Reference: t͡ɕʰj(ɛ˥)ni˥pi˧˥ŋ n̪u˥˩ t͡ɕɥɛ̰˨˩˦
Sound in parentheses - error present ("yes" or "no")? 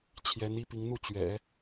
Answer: yes